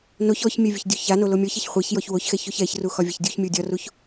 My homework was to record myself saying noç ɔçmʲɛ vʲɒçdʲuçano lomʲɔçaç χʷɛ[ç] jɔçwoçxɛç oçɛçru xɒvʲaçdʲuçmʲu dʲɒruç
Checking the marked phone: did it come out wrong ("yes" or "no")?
no